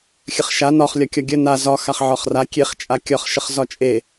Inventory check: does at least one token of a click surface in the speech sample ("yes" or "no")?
no